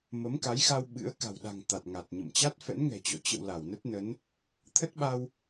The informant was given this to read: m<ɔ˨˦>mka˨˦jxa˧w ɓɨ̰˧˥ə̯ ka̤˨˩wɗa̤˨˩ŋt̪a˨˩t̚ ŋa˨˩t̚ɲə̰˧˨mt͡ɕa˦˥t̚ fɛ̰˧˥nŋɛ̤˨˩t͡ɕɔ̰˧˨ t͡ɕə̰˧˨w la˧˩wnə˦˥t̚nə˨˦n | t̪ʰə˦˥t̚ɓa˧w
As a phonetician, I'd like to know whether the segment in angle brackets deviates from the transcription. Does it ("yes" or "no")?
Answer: yes